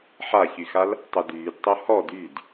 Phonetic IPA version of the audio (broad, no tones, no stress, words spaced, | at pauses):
ħaçyxal | tˤədyːdtˤo hɔd yd